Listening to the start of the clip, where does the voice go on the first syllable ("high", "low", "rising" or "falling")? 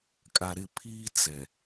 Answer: low